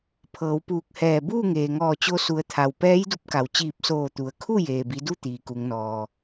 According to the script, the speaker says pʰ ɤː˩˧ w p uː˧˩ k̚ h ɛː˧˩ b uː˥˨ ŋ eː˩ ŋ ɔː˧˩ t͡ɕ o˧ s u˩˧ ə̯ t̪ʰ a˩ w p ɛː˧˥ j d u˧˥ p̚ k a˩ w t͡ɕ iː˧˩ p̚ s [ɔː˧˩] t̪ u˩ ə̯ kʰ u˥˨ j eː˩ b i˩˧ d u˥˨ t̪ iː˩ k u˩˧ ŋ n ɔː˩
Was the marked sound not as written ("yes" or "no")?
yes